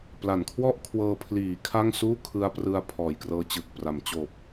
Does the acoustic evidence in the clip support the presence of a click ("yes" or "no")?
no